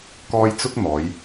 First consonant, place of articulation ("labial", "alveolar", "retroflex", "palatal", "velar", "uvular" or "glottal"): velar